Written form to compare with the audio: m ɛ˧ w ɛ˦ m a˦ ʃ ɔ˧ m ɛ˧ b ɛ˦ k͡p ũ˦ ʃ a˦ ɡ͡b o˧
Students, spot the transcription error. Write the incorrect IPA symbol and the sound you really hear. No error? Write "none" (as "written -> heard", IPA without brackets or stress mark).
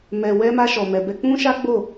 o˧ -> o˦˨